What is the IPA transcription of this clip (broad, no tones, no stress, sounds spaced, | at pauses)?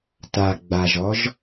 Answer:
t a ɡ͡b a ʒ ɔ ʒ